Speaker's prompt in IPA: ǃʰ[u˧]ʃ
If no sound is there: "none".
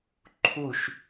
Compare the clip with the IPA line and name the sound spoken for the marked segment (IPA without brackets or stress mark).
u˥˧